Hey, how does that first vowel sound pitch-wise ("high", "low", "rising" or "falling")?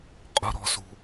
high